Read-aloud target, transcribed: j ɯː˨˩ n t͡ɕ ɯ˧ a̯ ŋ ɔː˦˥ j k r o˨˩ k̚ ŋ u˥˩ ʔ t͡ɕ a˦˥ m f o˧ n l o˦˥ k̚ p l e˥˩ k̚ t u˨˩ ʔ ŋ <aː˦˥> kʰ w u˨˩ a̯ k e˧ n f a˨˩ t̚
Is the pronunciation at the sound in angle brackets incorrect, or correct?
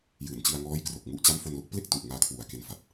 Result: incorrect